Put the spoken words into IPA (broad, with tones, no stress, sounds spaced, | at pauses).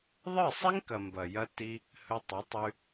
ðˤ ɨ˦˨ sˤ i˦ ŋ k ɐ˨ m b ɐ˨ j ɐ˧ t i˧ | h ɵ˧ tˤ ɵ˨˦ tˤ ʉ˧